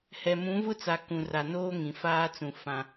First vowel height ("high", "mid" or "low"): mid